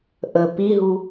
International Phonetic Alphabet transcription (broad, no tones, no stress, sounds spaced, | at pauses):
ʔ ə p i ɦ u